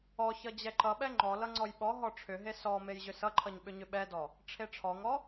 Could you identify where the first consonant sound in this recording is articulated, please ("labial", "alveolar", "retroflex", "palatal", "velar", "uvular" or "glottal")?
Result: palatal